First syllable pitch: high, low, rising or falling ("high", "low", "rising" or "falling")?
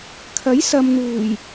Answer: rising